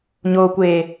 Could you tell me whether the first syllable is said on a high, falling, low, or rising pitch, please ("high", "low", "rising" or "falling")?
low